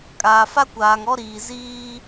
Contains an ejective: yes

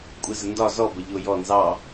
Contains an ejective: yes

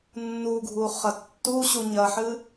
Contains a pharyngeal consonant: yes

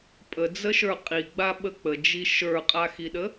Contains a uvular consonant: yes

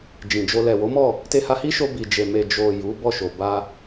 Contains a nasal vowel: yes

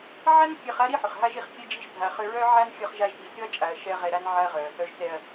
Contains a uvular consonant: yes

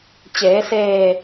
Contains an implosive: no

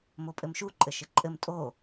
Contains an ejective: yes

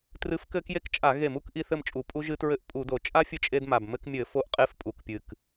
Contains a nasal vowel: no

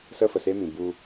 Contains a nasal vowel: yes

